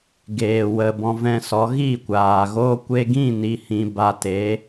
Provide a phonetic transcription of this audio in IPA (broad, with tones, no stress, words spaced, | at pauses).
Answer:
ɡeː˨ wə˨ bɔ̃˧vɛ̃˧sɔ˨˦ ɣi˦˨kʷaː˨ ɣoː˧kʷe˧ ɡĩ˦˨ ni˧hĩ˧ ba˧te˨˦